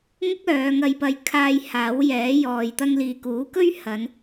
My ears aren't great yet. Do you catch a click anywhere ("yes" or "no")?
no